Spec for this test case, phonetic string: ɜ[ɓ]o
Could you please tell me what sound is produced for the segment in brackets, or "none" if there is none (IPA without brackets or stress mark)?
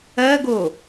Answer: ɡ